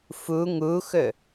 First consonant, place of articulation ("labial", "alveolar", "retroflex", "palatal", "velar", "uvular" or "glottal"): labial